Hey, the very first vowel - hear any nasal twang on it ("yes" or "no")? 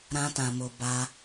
yes